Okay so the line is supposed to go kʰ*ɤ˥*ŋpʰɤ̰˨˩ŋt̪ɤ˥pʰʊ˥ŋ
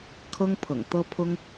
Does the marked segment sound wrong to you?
no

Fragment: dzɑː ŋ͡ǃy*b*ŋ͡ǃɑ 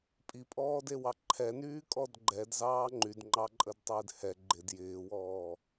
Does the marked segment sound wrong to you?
yes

